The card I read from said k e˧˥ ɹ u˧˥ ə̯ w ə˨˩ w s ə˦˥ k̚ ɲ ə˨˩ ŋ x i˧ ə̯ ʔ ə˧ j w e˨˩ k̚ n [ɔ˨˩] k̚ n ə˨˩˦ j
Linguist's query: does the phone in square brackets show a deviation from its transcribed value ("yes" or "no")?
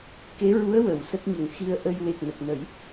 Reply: yes